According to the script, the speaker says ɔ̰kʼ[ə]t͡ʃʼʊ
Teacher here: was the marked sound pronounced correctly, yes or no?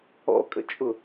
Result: no